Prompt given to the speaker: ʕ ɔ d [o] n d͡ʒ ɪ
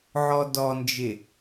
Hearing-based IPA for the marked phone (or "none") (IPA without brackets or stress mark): ɔ